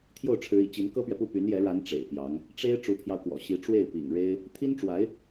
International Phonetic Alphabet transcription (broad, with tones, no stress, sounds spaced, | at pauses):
t̪ʰ j o˥˩ ʊ̯ ʈ͡ʂʰ ɻ̩˧˥ ḭ˨˩ t͡ɕ i˧˥ n k ɤ˥ p ɥ ɛ˨ p u˥˩ p y˧˥ n j ɛ˧˥ ɻ a˧˥ n ʈ͡ʂ ḛ˨˩ ɪ̯ p j ɑ˧˥ ŋ | ʈ͡ʂ e˥ ɪ̯ ʈ͡ʂ u˧˥ pʰ j ɑ˧ ʊ̯ k w ɔ̰˨˩ ɕ i˧˥ ʈ͡ʂ w e˥˩ ɪ̯ p ḭ˨˩ ŋ ɻ e˥ ɪ̯ | t̪ʰ i˥ n ʈ͡ʂ w a˧˥ ɪ̯